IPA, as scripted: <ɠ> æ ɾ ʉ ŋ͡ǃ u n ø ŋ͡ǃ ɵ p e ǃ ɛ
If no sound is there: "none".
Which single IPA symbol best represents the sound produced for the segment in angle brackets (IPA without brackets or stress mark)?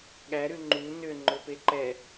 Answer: ɠ